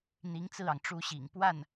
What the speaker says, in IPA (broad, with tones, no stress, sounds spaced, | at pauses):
n̪ i˧˥ ŋ t͡s ɹ̩˥˩ ɑ˩ ŋ ʈ͡ʂ u˥ ɕ ḭ˨˩ ŋ p w a˥˩ n